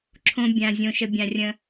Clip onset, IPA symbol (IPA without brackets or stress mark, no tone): ǁʰ